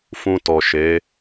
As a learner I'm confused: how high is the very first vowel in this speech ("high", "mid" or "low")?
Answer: high